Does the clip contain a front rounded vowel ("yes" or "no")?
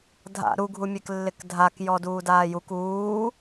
no